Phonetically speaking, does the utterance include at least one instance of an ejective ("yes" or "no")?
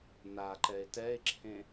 no